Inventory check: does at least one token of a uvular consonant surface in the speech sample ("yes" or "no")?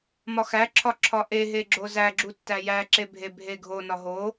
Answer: no